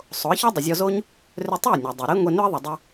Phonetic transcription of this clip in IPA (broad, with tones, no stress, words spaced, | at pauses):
sˤo˩˥ə̯çɔ˥ dˤə˩zʲɔ˧zo˥ɲ | rʏ˧tˤʏ˥˩ə̯ nʲa˩dˤo˩ɾe˥ ŋʷe˧nʏ˥ə̯ðˤə˩ dˤɨ˧